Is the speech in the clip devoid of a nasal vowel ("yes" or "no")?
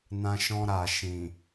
no